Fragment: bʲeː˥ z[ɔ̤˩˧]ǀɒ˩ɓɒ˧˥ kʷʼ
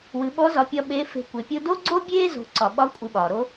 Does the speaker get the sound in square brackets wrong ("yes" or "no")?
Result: yes